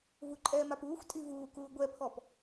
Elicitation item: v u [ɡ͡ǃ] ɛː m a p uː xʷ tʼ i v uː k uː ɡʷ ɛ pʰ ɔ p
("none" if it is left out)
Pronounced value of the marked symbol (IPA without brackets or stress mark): ǃʼ